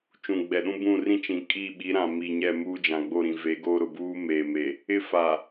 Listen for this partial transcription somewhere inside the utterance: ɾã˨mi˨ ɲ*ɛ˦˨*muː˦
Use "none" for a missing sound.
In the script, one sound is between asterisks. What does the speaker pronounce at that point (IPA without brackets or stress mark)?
ɛ˦˨